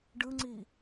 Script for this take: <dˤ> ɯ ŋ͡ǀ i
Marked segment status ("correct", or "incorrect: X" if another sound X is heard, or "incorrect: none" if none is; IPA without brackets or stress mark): incorrect: ɖ